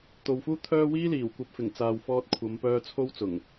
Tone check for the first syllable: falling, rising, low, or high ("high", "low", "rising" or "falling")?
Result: low